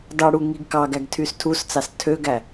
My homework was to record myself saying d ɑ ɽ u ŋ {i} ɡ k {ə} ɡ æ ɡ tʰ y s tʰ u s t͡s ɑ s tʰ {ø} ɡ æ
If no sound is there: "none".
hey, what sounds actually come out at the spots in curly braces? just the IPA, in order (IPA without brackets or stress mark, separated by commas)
i, ɑ, ø